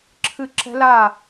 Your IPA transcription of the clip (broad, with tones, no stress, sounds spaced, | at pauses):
ǁʰ ɨ˧˩ ǁ ɛ̤˦˥ l a˥˨